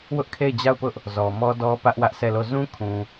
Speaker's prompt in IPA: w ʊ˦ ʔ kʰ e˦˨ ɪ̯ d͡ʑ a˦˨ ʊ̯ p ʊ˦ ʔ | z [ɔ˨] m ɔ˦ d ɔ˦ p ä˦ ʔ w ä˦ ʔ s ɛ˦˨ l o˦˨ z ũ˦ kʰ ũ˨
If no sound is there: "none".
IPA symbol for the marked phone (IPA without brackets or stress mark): ɔ˨